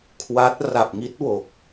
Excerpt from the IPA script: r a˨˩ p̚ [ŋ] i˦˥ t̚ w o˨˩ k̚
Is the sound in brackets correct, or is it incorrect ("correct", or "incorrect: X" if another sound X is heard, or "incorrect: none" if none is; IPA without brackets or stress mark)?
correct